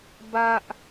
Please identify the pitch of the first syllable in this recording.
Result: high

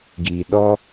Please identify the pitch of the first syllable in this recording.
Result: low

